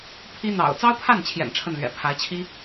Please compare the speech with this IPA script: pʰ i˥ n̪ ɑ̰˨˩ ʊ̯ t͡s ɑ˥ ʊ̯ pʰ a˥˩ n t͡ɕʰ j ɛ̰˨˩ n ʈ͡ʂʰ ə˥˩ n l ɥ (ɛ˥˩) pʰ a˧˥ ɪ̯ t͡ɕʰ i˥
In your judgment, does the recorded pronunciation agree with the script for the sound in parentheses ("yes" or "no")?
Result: no